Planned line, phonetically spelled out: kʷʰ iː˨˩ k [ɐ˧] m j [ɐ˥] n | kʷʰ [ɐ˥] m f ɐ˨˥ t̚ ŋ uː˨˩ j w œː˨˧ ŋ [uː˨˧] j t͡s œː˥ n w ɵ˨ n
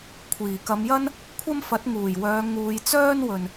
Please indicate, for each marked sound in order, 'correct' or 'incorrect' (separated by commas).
incorrect, correct, correct, correct